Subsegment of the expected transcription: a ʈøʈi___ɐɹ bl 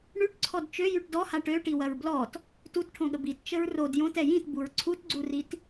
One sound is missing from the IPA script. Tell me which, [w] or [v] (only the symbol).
w